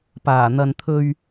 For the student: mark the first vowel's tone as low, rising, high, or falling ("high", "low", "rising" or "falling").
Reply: low